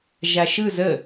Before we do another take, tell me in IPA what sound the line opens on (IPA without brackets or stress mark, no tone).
ʒ